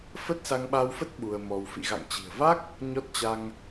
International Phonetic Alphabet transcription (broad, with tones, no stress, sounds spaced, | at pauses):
f ə˦˥ t̚ s a˧ ŋ ɓ a˧ w f ə˦˥ t̚ ɓ u˧ ə̯ m ɔ˧ w f ḭ˧˨ ɣ a̰˧˨ ŋ t͡ɕ i̤˨˩ ə̯ v a˦˥ k̚ | ɲ ɔ˦˥ t̚ t͡ɕ a˧ ŋ